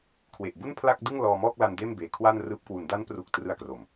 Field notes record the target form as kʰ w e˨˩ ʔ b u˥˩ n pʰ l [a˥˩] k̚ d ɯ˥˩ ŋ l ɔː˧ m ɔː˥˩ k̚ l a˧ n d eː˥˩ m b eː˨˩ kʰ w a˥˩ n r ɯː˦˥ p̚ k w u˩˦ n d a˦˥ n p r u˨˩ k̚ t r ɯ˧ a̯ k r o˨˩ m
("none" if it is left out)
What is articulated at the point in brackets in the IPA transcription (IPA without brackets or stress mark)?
a˥˩